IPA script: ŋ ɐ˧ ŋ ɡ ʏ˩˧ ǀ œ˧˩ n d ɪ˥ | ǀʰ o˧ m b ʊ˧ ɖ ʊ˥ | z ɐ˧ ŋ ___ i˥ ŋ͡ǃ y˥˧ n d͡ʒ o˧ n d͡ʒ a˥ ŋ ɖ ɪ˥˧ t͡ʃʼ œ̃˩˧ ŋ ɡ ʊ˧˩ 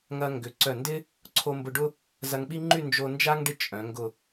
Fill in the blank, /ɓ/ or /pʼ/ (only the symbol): ɓ